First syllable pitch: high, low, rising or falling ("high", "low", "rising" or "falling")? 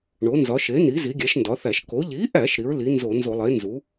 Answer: rising